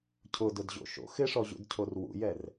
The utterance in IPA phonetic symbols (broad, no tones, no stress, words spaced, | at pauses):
cʰʊdʊdʑo̰ ʃo̰ xɪʂɔʑṵdcʰor wṵjɛr